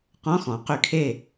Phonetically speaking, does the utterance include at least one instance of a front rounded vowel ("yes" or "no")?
yes